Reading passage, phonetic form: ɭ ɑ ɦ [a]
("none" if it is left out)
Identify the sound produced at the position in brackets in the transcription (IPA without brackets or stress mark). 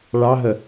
ə